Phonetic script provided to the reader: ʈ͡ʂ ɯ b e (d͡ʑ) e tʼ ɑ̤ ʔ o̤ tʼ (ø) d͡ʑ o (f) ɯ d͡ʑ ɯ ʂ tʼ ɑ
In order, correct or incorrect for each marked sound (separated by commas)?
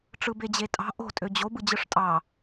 correct, correct, incorrect